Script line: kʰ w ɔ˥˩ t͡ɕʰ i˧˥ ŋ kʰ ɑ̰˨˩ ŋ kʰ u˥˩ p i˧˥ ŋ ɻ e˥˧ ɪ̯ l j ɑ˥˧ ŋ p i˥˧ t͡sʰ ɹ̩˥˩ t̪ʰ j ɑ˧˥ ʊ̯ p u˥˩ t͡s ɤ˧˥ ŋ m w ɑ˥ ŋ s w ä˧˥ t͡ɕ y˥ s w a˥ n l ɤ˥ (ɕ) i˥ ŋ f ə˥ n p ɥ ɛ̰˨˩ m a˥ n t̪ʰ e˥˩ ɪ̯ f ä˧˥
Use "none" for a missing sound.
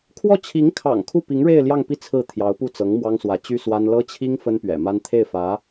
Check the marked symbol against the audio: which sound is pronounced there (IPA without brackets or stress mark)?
t͡ɕʰ